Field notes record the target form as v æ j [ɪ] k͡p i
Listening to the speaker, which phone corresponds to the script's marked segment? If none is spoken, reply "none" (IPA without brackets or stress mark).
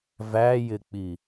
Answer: ɪ